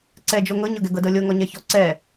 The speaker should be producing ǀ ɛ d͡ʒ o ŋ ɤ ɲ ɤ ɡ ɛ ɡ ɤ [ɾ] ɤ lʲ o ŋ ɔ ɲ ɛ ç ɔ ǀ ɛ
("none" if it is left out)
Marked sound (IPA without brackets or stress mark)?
d